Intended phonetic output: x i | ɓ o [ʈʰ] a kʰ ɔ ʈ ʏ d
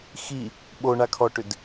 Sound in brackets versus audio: incorrect: ɳ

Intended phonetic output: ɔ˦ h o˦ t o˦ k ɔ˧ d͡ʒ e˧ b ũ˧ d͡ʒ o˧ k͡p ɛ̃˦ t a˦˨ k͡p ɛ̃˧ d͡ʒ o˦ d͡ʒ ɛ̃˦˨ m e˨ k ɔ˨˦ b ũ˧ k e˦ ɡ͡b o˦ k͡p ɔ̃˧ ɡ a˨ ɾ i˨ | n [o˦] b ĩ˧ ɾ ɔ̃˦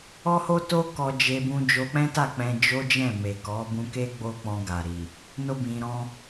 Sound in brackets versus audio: correct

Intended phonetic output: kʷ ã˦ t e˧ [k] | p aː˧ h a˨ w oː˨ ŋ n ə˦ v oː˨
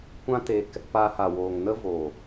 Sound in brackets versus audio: correct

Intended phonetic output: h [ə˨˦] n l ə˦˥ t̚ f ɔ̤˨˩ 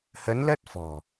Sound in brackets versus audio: correct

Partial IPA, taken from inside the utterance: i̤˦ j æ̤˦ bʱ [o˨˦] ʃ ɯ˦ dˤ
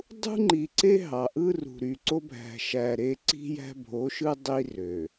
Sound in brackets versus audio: correct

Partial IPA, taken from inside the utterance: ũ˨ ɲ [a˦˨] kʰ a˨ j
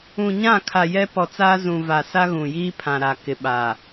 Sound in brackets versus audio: incorrect: ã˦˨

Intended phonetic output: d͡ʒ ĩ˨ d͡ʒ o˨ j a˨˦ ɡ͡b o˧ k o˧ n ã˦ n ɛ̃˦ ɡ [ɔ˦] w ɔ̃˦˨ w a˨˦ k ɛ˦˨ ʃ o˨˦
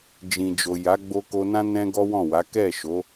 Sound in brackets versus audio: correct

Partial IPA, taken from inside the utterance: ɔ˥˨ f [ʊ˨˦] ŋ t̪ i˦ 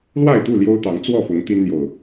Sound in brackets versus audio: correct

